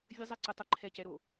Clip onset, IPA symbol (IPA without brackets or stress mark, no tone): vʲ